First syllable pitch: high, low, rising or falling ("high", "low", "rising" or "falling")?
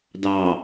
low